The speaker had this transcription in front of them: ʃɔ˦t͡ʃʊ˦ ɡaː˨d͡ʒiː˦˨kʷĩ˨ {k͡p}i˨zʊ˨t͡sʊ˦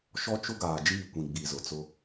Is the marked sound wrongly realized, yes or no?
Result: yes